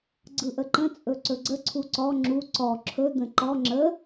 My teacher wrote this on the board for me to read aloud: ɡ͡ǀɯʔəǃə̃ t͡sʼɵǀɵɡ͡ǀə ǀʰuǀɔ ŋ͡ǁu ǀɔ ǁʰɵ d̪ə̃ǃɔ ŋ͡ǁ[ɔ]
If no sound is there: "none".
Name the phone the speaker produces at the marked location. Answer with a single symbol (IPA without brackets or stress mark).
ə